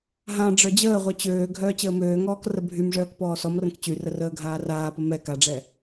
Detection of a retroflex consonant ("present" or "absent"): present